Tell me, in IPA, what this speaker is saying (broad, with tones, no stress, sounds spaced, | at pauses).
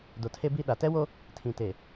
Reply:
d o˨ tʰ e˦ b i˦ ɗ a˨ t ɛ˦ w o˦ | tʰ ĩ˨ t eː˨